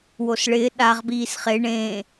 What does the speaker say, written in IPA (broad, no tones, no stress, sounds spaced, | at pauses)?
w o s ɭ ɪː ɗ a ʁ b iː s χ e ɳ ẽ